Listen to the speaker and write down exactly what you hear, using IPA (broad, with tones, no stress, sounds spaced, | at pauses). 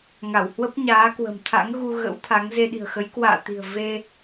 ŋ a˧˩ w h w ə˦˥ p̚ ɲ aː˨˦ k w ə̤˨˩ m t̪ʰ a̰˧˥ ŋ ɣ u˧ ɣ ə̰˧˥ w t̪ʰ a˨˦ ŋ z e˧ ɗ i̤˨˩ ə̯ x ə˨˦ j k w a̰ː˧˨ t̪ i̤˨˩ ə̯ v e˧